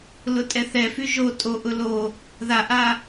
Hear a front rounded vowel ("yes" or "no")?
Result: yes